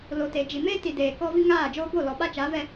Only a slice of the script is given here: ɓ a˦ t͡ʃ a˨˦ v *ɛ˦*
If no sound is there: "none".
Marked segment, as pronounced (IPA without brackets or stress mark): ɛ˦